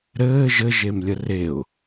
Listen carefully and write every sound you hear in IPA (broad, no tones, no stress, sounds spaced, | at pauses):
ɾ ɘː ʒ ɘ ʒ e m lʲ ə r e ʊ̯